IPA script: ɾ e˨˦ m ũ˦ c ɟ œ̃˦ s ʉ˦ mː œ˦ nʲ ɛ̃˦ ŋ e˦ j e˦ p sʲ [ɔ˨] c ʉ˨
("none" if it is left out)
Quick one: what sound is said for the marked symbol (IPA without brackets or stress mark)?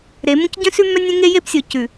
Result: o˨